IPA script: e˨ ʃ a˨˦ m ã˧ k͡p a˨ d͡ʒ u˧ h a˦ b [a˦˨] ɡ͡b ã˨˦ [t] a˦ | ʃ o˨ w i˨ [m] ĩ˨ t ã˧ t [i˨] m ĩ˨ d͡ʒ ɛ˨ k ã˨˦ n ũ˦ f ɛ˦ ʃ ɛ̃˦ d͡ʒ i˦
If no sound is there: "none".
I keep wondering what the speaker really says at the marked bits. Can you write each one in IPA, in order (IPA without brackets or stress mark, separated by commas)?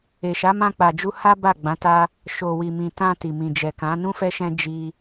a˦˨, t, m, i˨